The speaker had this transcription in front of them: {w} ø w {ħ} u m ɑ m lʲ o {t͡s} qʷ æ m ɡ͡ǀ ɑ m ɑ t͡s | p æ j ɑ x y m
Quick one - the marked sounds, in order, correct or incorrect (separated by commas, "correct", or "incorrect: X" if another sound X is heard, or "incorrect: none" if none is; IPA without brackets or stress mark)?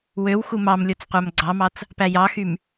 correct, incorrect: x, correct